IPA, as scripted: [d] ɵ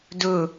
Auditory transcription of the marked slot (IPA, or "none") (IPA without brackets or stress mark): d